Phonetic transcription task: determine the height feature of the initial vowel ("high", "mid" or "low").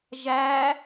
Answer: low